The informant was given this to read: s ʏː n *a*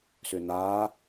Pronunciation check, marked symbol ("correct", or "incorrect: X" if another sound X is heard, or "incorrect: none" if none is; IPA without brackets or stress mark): incorrect: aː